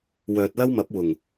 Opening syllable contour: low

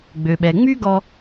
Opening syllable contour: low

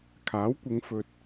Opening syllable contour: rising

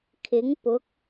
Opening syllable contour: rising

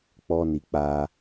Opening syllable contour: high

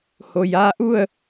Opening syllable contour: low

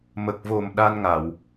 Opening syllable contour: low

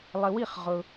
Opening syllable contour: low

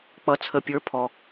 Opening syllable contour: rising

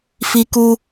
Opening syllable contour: high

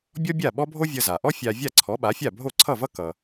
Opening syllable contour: high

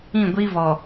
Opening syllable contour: falling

